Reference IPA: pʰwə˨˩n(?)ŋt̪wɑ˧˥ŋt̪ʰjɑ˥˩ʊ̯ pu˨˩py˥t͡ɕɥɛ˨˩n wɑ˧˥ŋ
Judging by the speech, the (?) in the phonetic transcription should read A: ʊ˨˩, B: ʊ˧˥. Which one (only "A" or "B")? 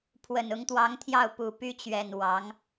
B